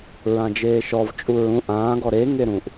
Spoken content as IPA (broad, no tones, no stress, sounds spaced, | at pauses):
ɹ ã d͡ʒ eː ʃ ɔ v t͡ʃʼ u ɹ ũ ʔ ãː ɡ ɔ ɾ e ŋ e ɾ ũ ʔ